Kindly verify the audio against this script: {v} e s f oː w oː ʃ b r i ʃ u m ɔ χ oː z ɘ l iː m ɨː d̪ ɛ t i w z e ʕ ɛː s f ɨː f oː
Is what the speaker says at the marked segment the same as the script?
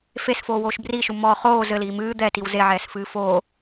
no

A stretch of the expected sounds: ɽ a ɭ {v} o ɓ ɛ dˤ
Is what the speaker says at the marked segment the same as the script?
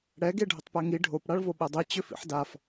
yes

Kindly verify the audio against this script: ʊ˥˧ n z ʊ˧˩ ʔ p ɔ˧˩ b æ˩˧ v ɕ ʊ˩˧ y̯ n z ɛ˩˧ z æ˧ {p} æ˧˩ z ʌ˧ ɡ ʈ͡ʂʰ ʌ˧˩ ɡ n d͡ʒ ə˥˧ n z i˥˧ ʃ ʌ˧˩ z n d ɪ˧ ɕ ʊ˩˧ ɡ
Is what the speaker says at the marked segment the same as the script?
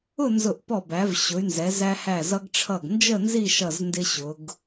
no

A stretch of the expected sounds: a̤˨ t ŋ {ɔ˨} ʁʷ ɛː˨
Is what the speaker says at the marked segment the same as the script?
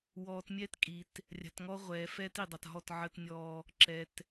no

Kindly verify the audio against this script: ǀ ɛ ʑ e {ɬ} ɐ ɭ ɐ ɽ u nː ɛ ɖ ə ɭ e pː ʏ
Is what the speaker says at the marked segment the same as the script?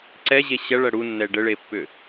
no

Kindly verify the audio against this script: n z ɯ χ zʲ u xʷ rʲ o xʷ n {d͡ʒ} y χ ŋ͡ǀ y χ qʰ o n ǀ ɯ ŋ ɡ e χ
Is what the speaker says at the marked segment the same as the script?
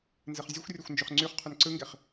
yes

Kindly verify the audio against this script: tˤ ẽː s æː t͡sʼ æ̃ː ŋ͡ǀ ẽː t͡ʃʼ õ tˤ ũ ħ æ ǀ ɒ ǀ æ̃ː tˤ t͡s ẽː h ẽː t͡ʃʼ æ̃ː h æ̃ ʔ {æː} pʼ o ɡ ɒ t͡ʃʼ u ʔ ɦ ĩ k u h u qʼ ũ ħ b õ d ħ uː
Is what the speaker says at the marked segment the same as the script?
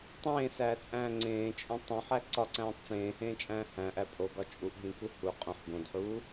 no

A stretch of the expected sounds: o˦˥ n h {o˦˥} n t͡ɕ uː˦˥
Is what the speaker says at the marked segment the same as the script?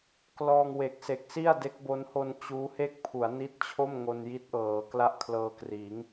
no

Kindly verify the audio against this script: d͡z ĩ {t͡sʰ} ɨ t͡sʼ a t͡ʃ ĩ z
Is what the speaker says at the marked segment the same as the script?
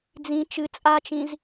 no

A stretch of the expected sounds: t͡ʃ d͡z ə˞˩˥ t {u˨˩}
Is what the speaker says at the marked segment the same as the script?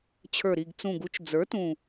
no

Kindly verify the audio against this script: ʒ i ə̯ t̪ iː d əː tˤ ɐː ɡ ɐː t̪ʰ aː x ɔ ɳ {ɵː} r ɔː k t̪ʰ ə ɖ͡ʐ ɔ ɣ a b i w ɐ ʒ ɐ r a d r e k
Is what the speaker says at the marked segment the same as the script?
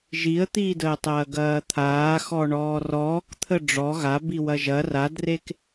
no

